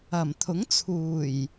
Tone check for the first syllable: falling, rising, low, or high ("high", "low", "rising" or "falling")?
low